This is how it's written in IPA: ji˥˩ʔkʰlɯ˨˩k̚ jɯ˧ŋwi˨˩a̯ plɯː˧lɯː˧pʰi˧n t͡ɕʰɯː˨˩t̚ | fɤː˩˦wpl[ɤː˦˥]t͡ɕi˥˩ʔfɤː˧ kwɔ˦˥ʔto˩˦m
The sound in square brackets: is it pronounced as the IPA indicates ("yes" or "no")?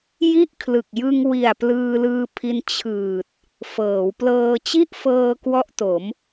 no